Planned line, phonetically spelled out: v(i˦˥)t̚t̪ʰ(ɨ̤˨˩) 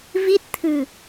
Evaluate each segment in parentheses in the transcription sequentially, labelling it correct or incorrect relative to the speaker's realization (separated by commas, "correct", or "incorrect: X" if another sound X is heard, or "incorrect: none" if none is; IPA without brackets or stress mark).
correct, correct